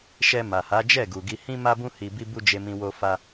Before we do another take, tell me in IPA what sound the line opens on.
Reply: ʃ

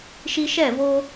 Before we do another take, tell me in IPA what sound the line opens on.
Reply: ʃ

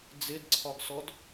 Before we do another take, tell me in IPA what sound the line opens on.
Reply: d͡z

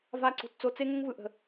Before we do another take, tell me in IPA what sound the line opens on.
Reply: v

